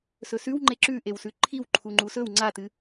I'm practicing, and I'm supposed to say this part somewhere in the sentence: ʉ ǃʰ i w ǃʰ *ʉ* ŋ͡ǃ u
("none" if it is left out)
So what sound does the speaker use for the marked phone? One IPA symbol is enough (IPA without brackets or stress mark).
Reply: u